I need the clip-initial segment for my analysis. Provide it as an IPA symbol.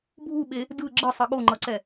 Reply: bʱ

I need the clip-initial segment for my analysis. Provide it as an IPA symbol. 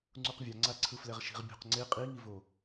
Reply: ŋ͡ǀ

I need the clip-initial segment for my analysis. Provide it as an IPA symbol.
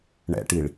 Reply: ɳ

